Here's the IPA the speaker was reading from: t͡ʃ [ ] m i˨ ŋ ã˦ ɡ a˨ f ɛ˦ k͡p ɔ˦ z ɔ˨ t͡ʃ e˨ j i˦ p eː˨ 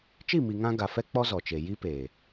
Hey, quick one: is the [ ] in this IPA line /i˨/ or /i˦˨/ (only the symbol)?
i˦˨